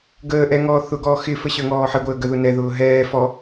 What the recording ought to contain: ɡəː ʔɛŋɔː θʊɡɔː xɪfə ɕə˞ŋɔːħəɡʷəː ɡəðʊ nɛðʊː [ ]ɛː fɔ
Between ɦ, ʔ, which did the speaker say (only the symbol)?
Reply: ɦ